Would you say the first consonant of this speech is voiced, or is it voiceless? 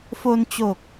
voiceless